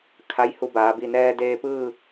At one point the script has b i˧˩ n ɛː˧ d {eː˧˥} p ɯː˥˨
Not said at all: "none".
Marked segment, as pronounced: eː˧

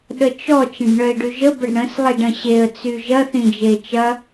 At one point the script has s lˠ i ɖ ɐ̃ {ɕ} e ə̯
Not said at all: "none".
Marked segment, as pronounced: ɕ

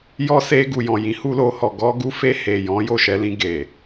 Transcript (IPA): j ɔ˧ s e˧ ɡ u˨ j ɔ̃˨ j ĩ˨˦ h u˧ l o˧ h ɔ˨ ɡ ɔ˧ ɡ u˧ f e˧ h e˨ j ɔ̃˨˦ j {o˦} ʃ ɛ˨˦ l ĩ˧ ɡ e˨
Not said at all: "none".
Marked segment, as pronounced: o˦˨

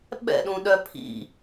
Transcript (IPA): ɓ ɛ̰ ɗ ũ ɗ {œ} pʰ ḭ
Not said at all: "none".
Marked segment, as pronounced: œ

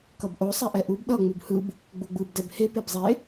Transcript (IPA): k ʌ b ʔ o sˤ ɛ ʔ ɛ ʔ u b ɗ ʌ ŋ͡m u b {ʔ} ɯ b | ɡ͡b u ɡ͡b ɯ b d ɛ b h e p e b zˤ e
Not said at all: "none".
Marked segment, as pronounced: h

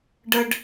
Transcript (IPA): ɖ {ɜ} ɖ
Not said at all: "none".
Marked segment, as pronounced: ɜ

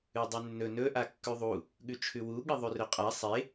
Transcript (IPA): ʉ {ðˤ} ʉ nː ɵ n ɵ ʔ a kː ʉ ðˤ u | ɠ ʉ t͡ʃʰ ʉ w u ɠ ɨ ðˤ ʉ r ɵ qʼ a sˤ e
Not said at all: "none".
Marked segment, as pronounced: dˤ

